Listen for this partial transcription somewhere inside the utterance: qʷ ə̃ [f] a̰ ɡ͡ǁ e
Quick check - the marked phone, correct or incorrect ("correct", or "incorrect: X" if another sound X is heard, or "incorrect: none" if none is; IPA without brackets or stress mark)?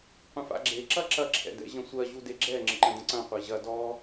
correct